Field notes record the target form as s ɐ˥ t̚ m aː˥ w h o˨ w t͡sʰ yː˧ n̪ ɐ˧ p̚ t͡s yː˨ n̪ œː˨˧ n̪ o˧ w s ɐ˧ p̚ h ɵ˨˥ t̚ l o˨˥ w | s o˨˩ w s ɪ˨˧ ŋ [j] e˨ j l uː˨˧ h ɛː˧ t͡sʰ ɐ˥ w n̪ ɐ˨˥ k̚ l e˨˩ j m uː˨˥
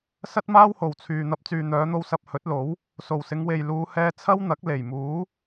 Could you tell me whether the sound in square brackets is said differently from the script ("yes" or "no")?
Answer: yes